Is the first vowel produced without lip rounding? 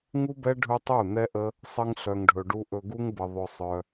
no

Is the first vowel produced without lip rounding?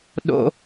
no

